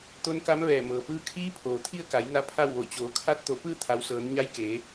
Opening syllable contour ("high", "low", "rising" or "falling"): rising